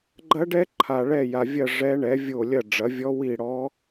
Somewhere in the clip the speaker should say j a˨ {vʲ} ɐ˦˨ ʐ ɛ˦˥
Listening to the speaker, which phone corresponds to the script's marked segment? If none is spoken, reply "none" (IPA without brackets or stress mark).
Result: vʲ